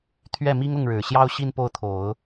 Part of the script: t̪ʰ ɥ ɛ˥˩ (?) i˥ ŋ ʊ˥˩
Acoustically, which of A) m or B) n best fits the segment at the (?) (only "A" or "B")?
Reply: A